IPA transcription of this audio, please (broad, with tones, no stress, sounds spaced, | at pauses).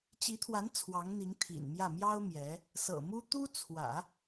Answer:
t͡ɕ i˧˥ t̪ʰ w a˧˥ n t͡sʰ w ɑ˧˥ ŋ n̪ i˧˥ ŋ t̪ʰ ḭ˨˩ n m j ä˥˩ m j ɑ˥ ʊ̯ m j ɛ˧˥ | s ɤ̰˨˩ m u˥ t̪ u˥ t͡sʰ w ä̰˨˩˦